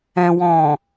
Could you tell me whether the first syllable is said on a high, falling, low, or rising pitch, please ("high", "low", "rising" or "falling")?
low